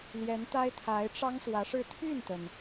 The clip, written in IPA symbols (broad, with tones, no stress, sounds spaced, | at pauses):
l j ɛ˧˥ n t̪ a˥ ɪ̯ t̪ʰ a˧˥ ɪ̯ ʈ͡ʂ ɑ˥ ŋ s w ä˧˥ ʂ ɻ̩˥˧ t̪ʰ y˥˩ n t̪ ə˩ n